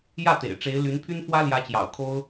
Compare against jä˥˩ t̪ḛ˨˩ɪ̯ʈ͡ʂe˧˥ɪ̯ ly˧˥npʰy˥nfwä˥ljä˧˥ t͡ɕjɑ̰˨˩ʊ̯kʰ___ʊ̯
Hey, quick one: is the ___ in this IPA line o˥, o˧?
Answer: o˥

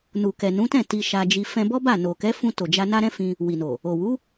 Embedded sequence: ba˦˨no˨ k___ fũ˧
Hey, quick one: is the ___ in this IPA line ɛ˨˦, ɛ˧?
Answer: ɛ˨˦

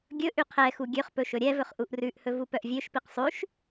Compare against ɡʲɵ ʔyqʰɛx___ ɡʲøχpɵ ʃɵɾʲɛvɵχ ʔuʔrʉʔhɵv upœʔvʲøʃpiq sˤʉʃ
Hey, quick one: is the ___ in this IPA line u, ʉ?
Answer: u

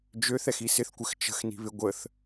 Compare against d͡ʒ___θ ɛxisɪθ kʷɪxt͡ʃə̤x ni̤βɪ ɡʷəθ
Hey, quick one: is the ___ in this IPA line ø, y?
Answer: ø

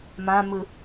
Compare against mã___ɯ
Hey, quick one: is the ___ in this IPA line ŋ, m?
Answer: m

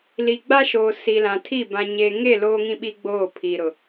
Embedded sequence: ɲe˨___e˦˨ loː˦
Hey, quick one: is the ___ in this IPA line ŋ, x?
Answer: ŋ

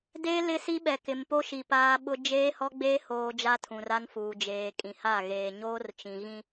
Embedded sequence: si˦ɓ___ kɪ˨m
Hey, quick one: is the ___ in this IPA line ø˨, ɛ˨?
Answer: ɛ˨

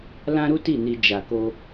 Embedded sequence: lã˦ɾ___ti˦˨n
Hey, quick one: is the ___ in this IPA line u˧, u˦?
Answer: u˦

